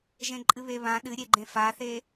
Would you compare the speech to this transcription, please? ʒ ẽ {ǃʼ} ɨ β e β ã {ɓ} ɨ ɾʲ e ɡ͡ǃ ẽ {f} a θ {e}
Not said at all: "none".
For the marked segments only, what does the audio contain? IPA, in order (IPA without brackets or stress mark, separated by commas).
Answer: ǃʼ, ɗ, f, e